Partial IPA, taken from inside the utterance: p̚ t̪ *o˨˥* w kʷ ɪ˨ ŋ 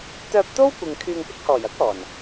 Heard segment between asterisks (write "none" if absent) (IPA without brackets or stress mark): o˥